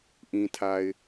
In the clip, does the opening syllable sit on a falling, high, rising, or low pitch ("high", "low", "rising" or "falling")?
low